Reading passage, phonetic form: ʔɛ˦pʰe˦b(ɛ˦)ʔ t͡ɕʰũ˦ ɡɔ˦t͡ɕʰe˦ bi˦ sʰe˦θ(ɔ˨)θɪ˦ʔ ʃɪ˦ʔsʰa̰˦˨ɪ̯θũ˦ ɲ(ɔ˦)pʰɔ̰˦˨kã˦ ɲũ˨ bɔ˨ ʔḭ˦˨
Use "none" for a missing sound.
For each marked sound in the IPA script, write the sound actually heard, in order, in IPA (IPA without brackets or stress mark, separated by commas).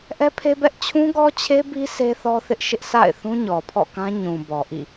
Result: ɛ˦, ɔ˦, ɔ˨